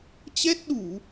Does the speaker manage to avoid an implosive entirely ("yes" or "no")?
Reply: no